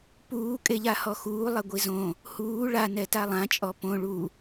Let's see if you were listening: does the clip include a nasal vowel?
yes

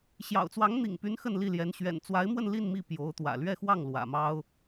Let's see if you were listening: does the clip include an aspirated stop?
no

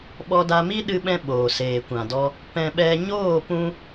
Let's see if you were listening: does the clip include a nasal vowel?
yes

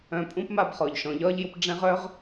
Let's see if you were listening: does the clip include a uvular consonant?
yes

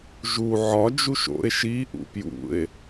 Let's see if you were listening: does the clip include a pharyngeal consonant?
yes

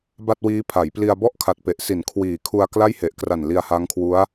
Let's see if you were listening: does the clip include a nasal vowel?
no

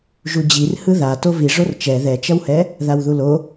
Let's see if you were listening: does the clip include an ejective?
no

